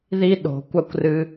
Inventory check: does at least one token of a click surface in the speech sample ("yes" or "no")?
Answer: no